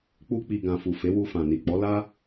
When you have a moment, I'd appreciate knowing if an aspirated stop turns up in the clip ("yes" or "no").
no